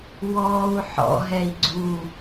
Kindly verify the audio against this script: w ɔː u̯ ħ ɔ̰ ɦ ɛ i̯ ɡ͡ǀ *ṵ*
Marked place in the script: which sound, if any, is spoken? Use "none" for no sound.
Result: u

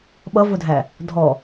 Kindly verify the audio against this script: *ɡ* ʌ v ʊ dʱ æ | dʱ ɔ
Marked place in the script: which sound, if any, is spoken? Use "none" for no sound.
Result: ɓ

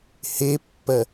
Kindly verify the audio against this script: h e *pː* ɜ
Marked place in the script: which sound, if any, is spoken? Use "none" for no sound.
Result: pː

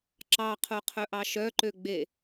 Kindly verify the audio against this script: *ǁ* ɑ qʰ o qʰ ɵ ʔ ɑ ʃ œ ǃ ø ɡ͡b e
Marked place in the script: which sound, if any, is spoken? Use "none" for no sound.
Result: ǁ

